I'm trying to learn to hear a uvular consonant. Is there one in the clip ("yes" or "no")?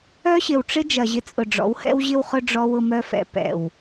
yes